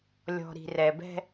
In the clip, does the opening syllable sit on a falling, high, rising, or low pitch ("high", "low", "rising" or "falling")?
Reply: low